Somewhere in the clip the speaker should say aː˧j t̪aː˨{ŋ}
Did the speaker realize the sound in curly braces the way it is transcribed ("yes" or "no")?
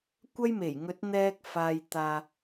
no